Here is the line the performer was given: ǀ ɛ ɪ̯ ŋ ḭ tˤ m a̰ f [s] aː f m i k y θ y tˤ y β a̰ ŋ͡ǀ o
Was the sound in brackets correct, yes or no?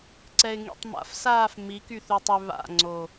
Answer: yes